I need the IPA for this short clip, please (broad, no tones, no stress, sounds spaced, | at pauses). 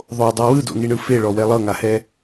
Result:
ðˤ o dˤ ɤ w ɯ d o̰ ŋ i ɳ ɯ f e ɭ ɔ w ɛ lˠ ɤ ŋ a h ɛ